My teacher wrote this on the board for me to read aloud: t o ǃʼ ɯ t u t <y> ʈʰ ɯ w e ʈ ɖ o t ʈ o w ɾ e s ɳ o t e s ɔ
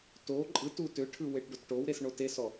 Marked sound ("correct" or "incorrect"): incorrect